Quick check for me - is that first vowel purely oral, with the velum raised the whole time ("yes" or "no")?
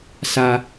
yes